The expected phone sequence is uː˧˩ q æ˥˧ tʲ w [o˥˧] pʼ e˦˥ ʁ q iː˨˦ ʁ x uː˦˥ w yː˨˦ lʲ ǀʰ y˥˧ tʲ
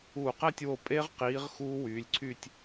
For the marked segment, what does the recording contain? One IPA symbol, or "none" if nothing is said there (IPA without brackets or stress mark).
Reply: o˧˩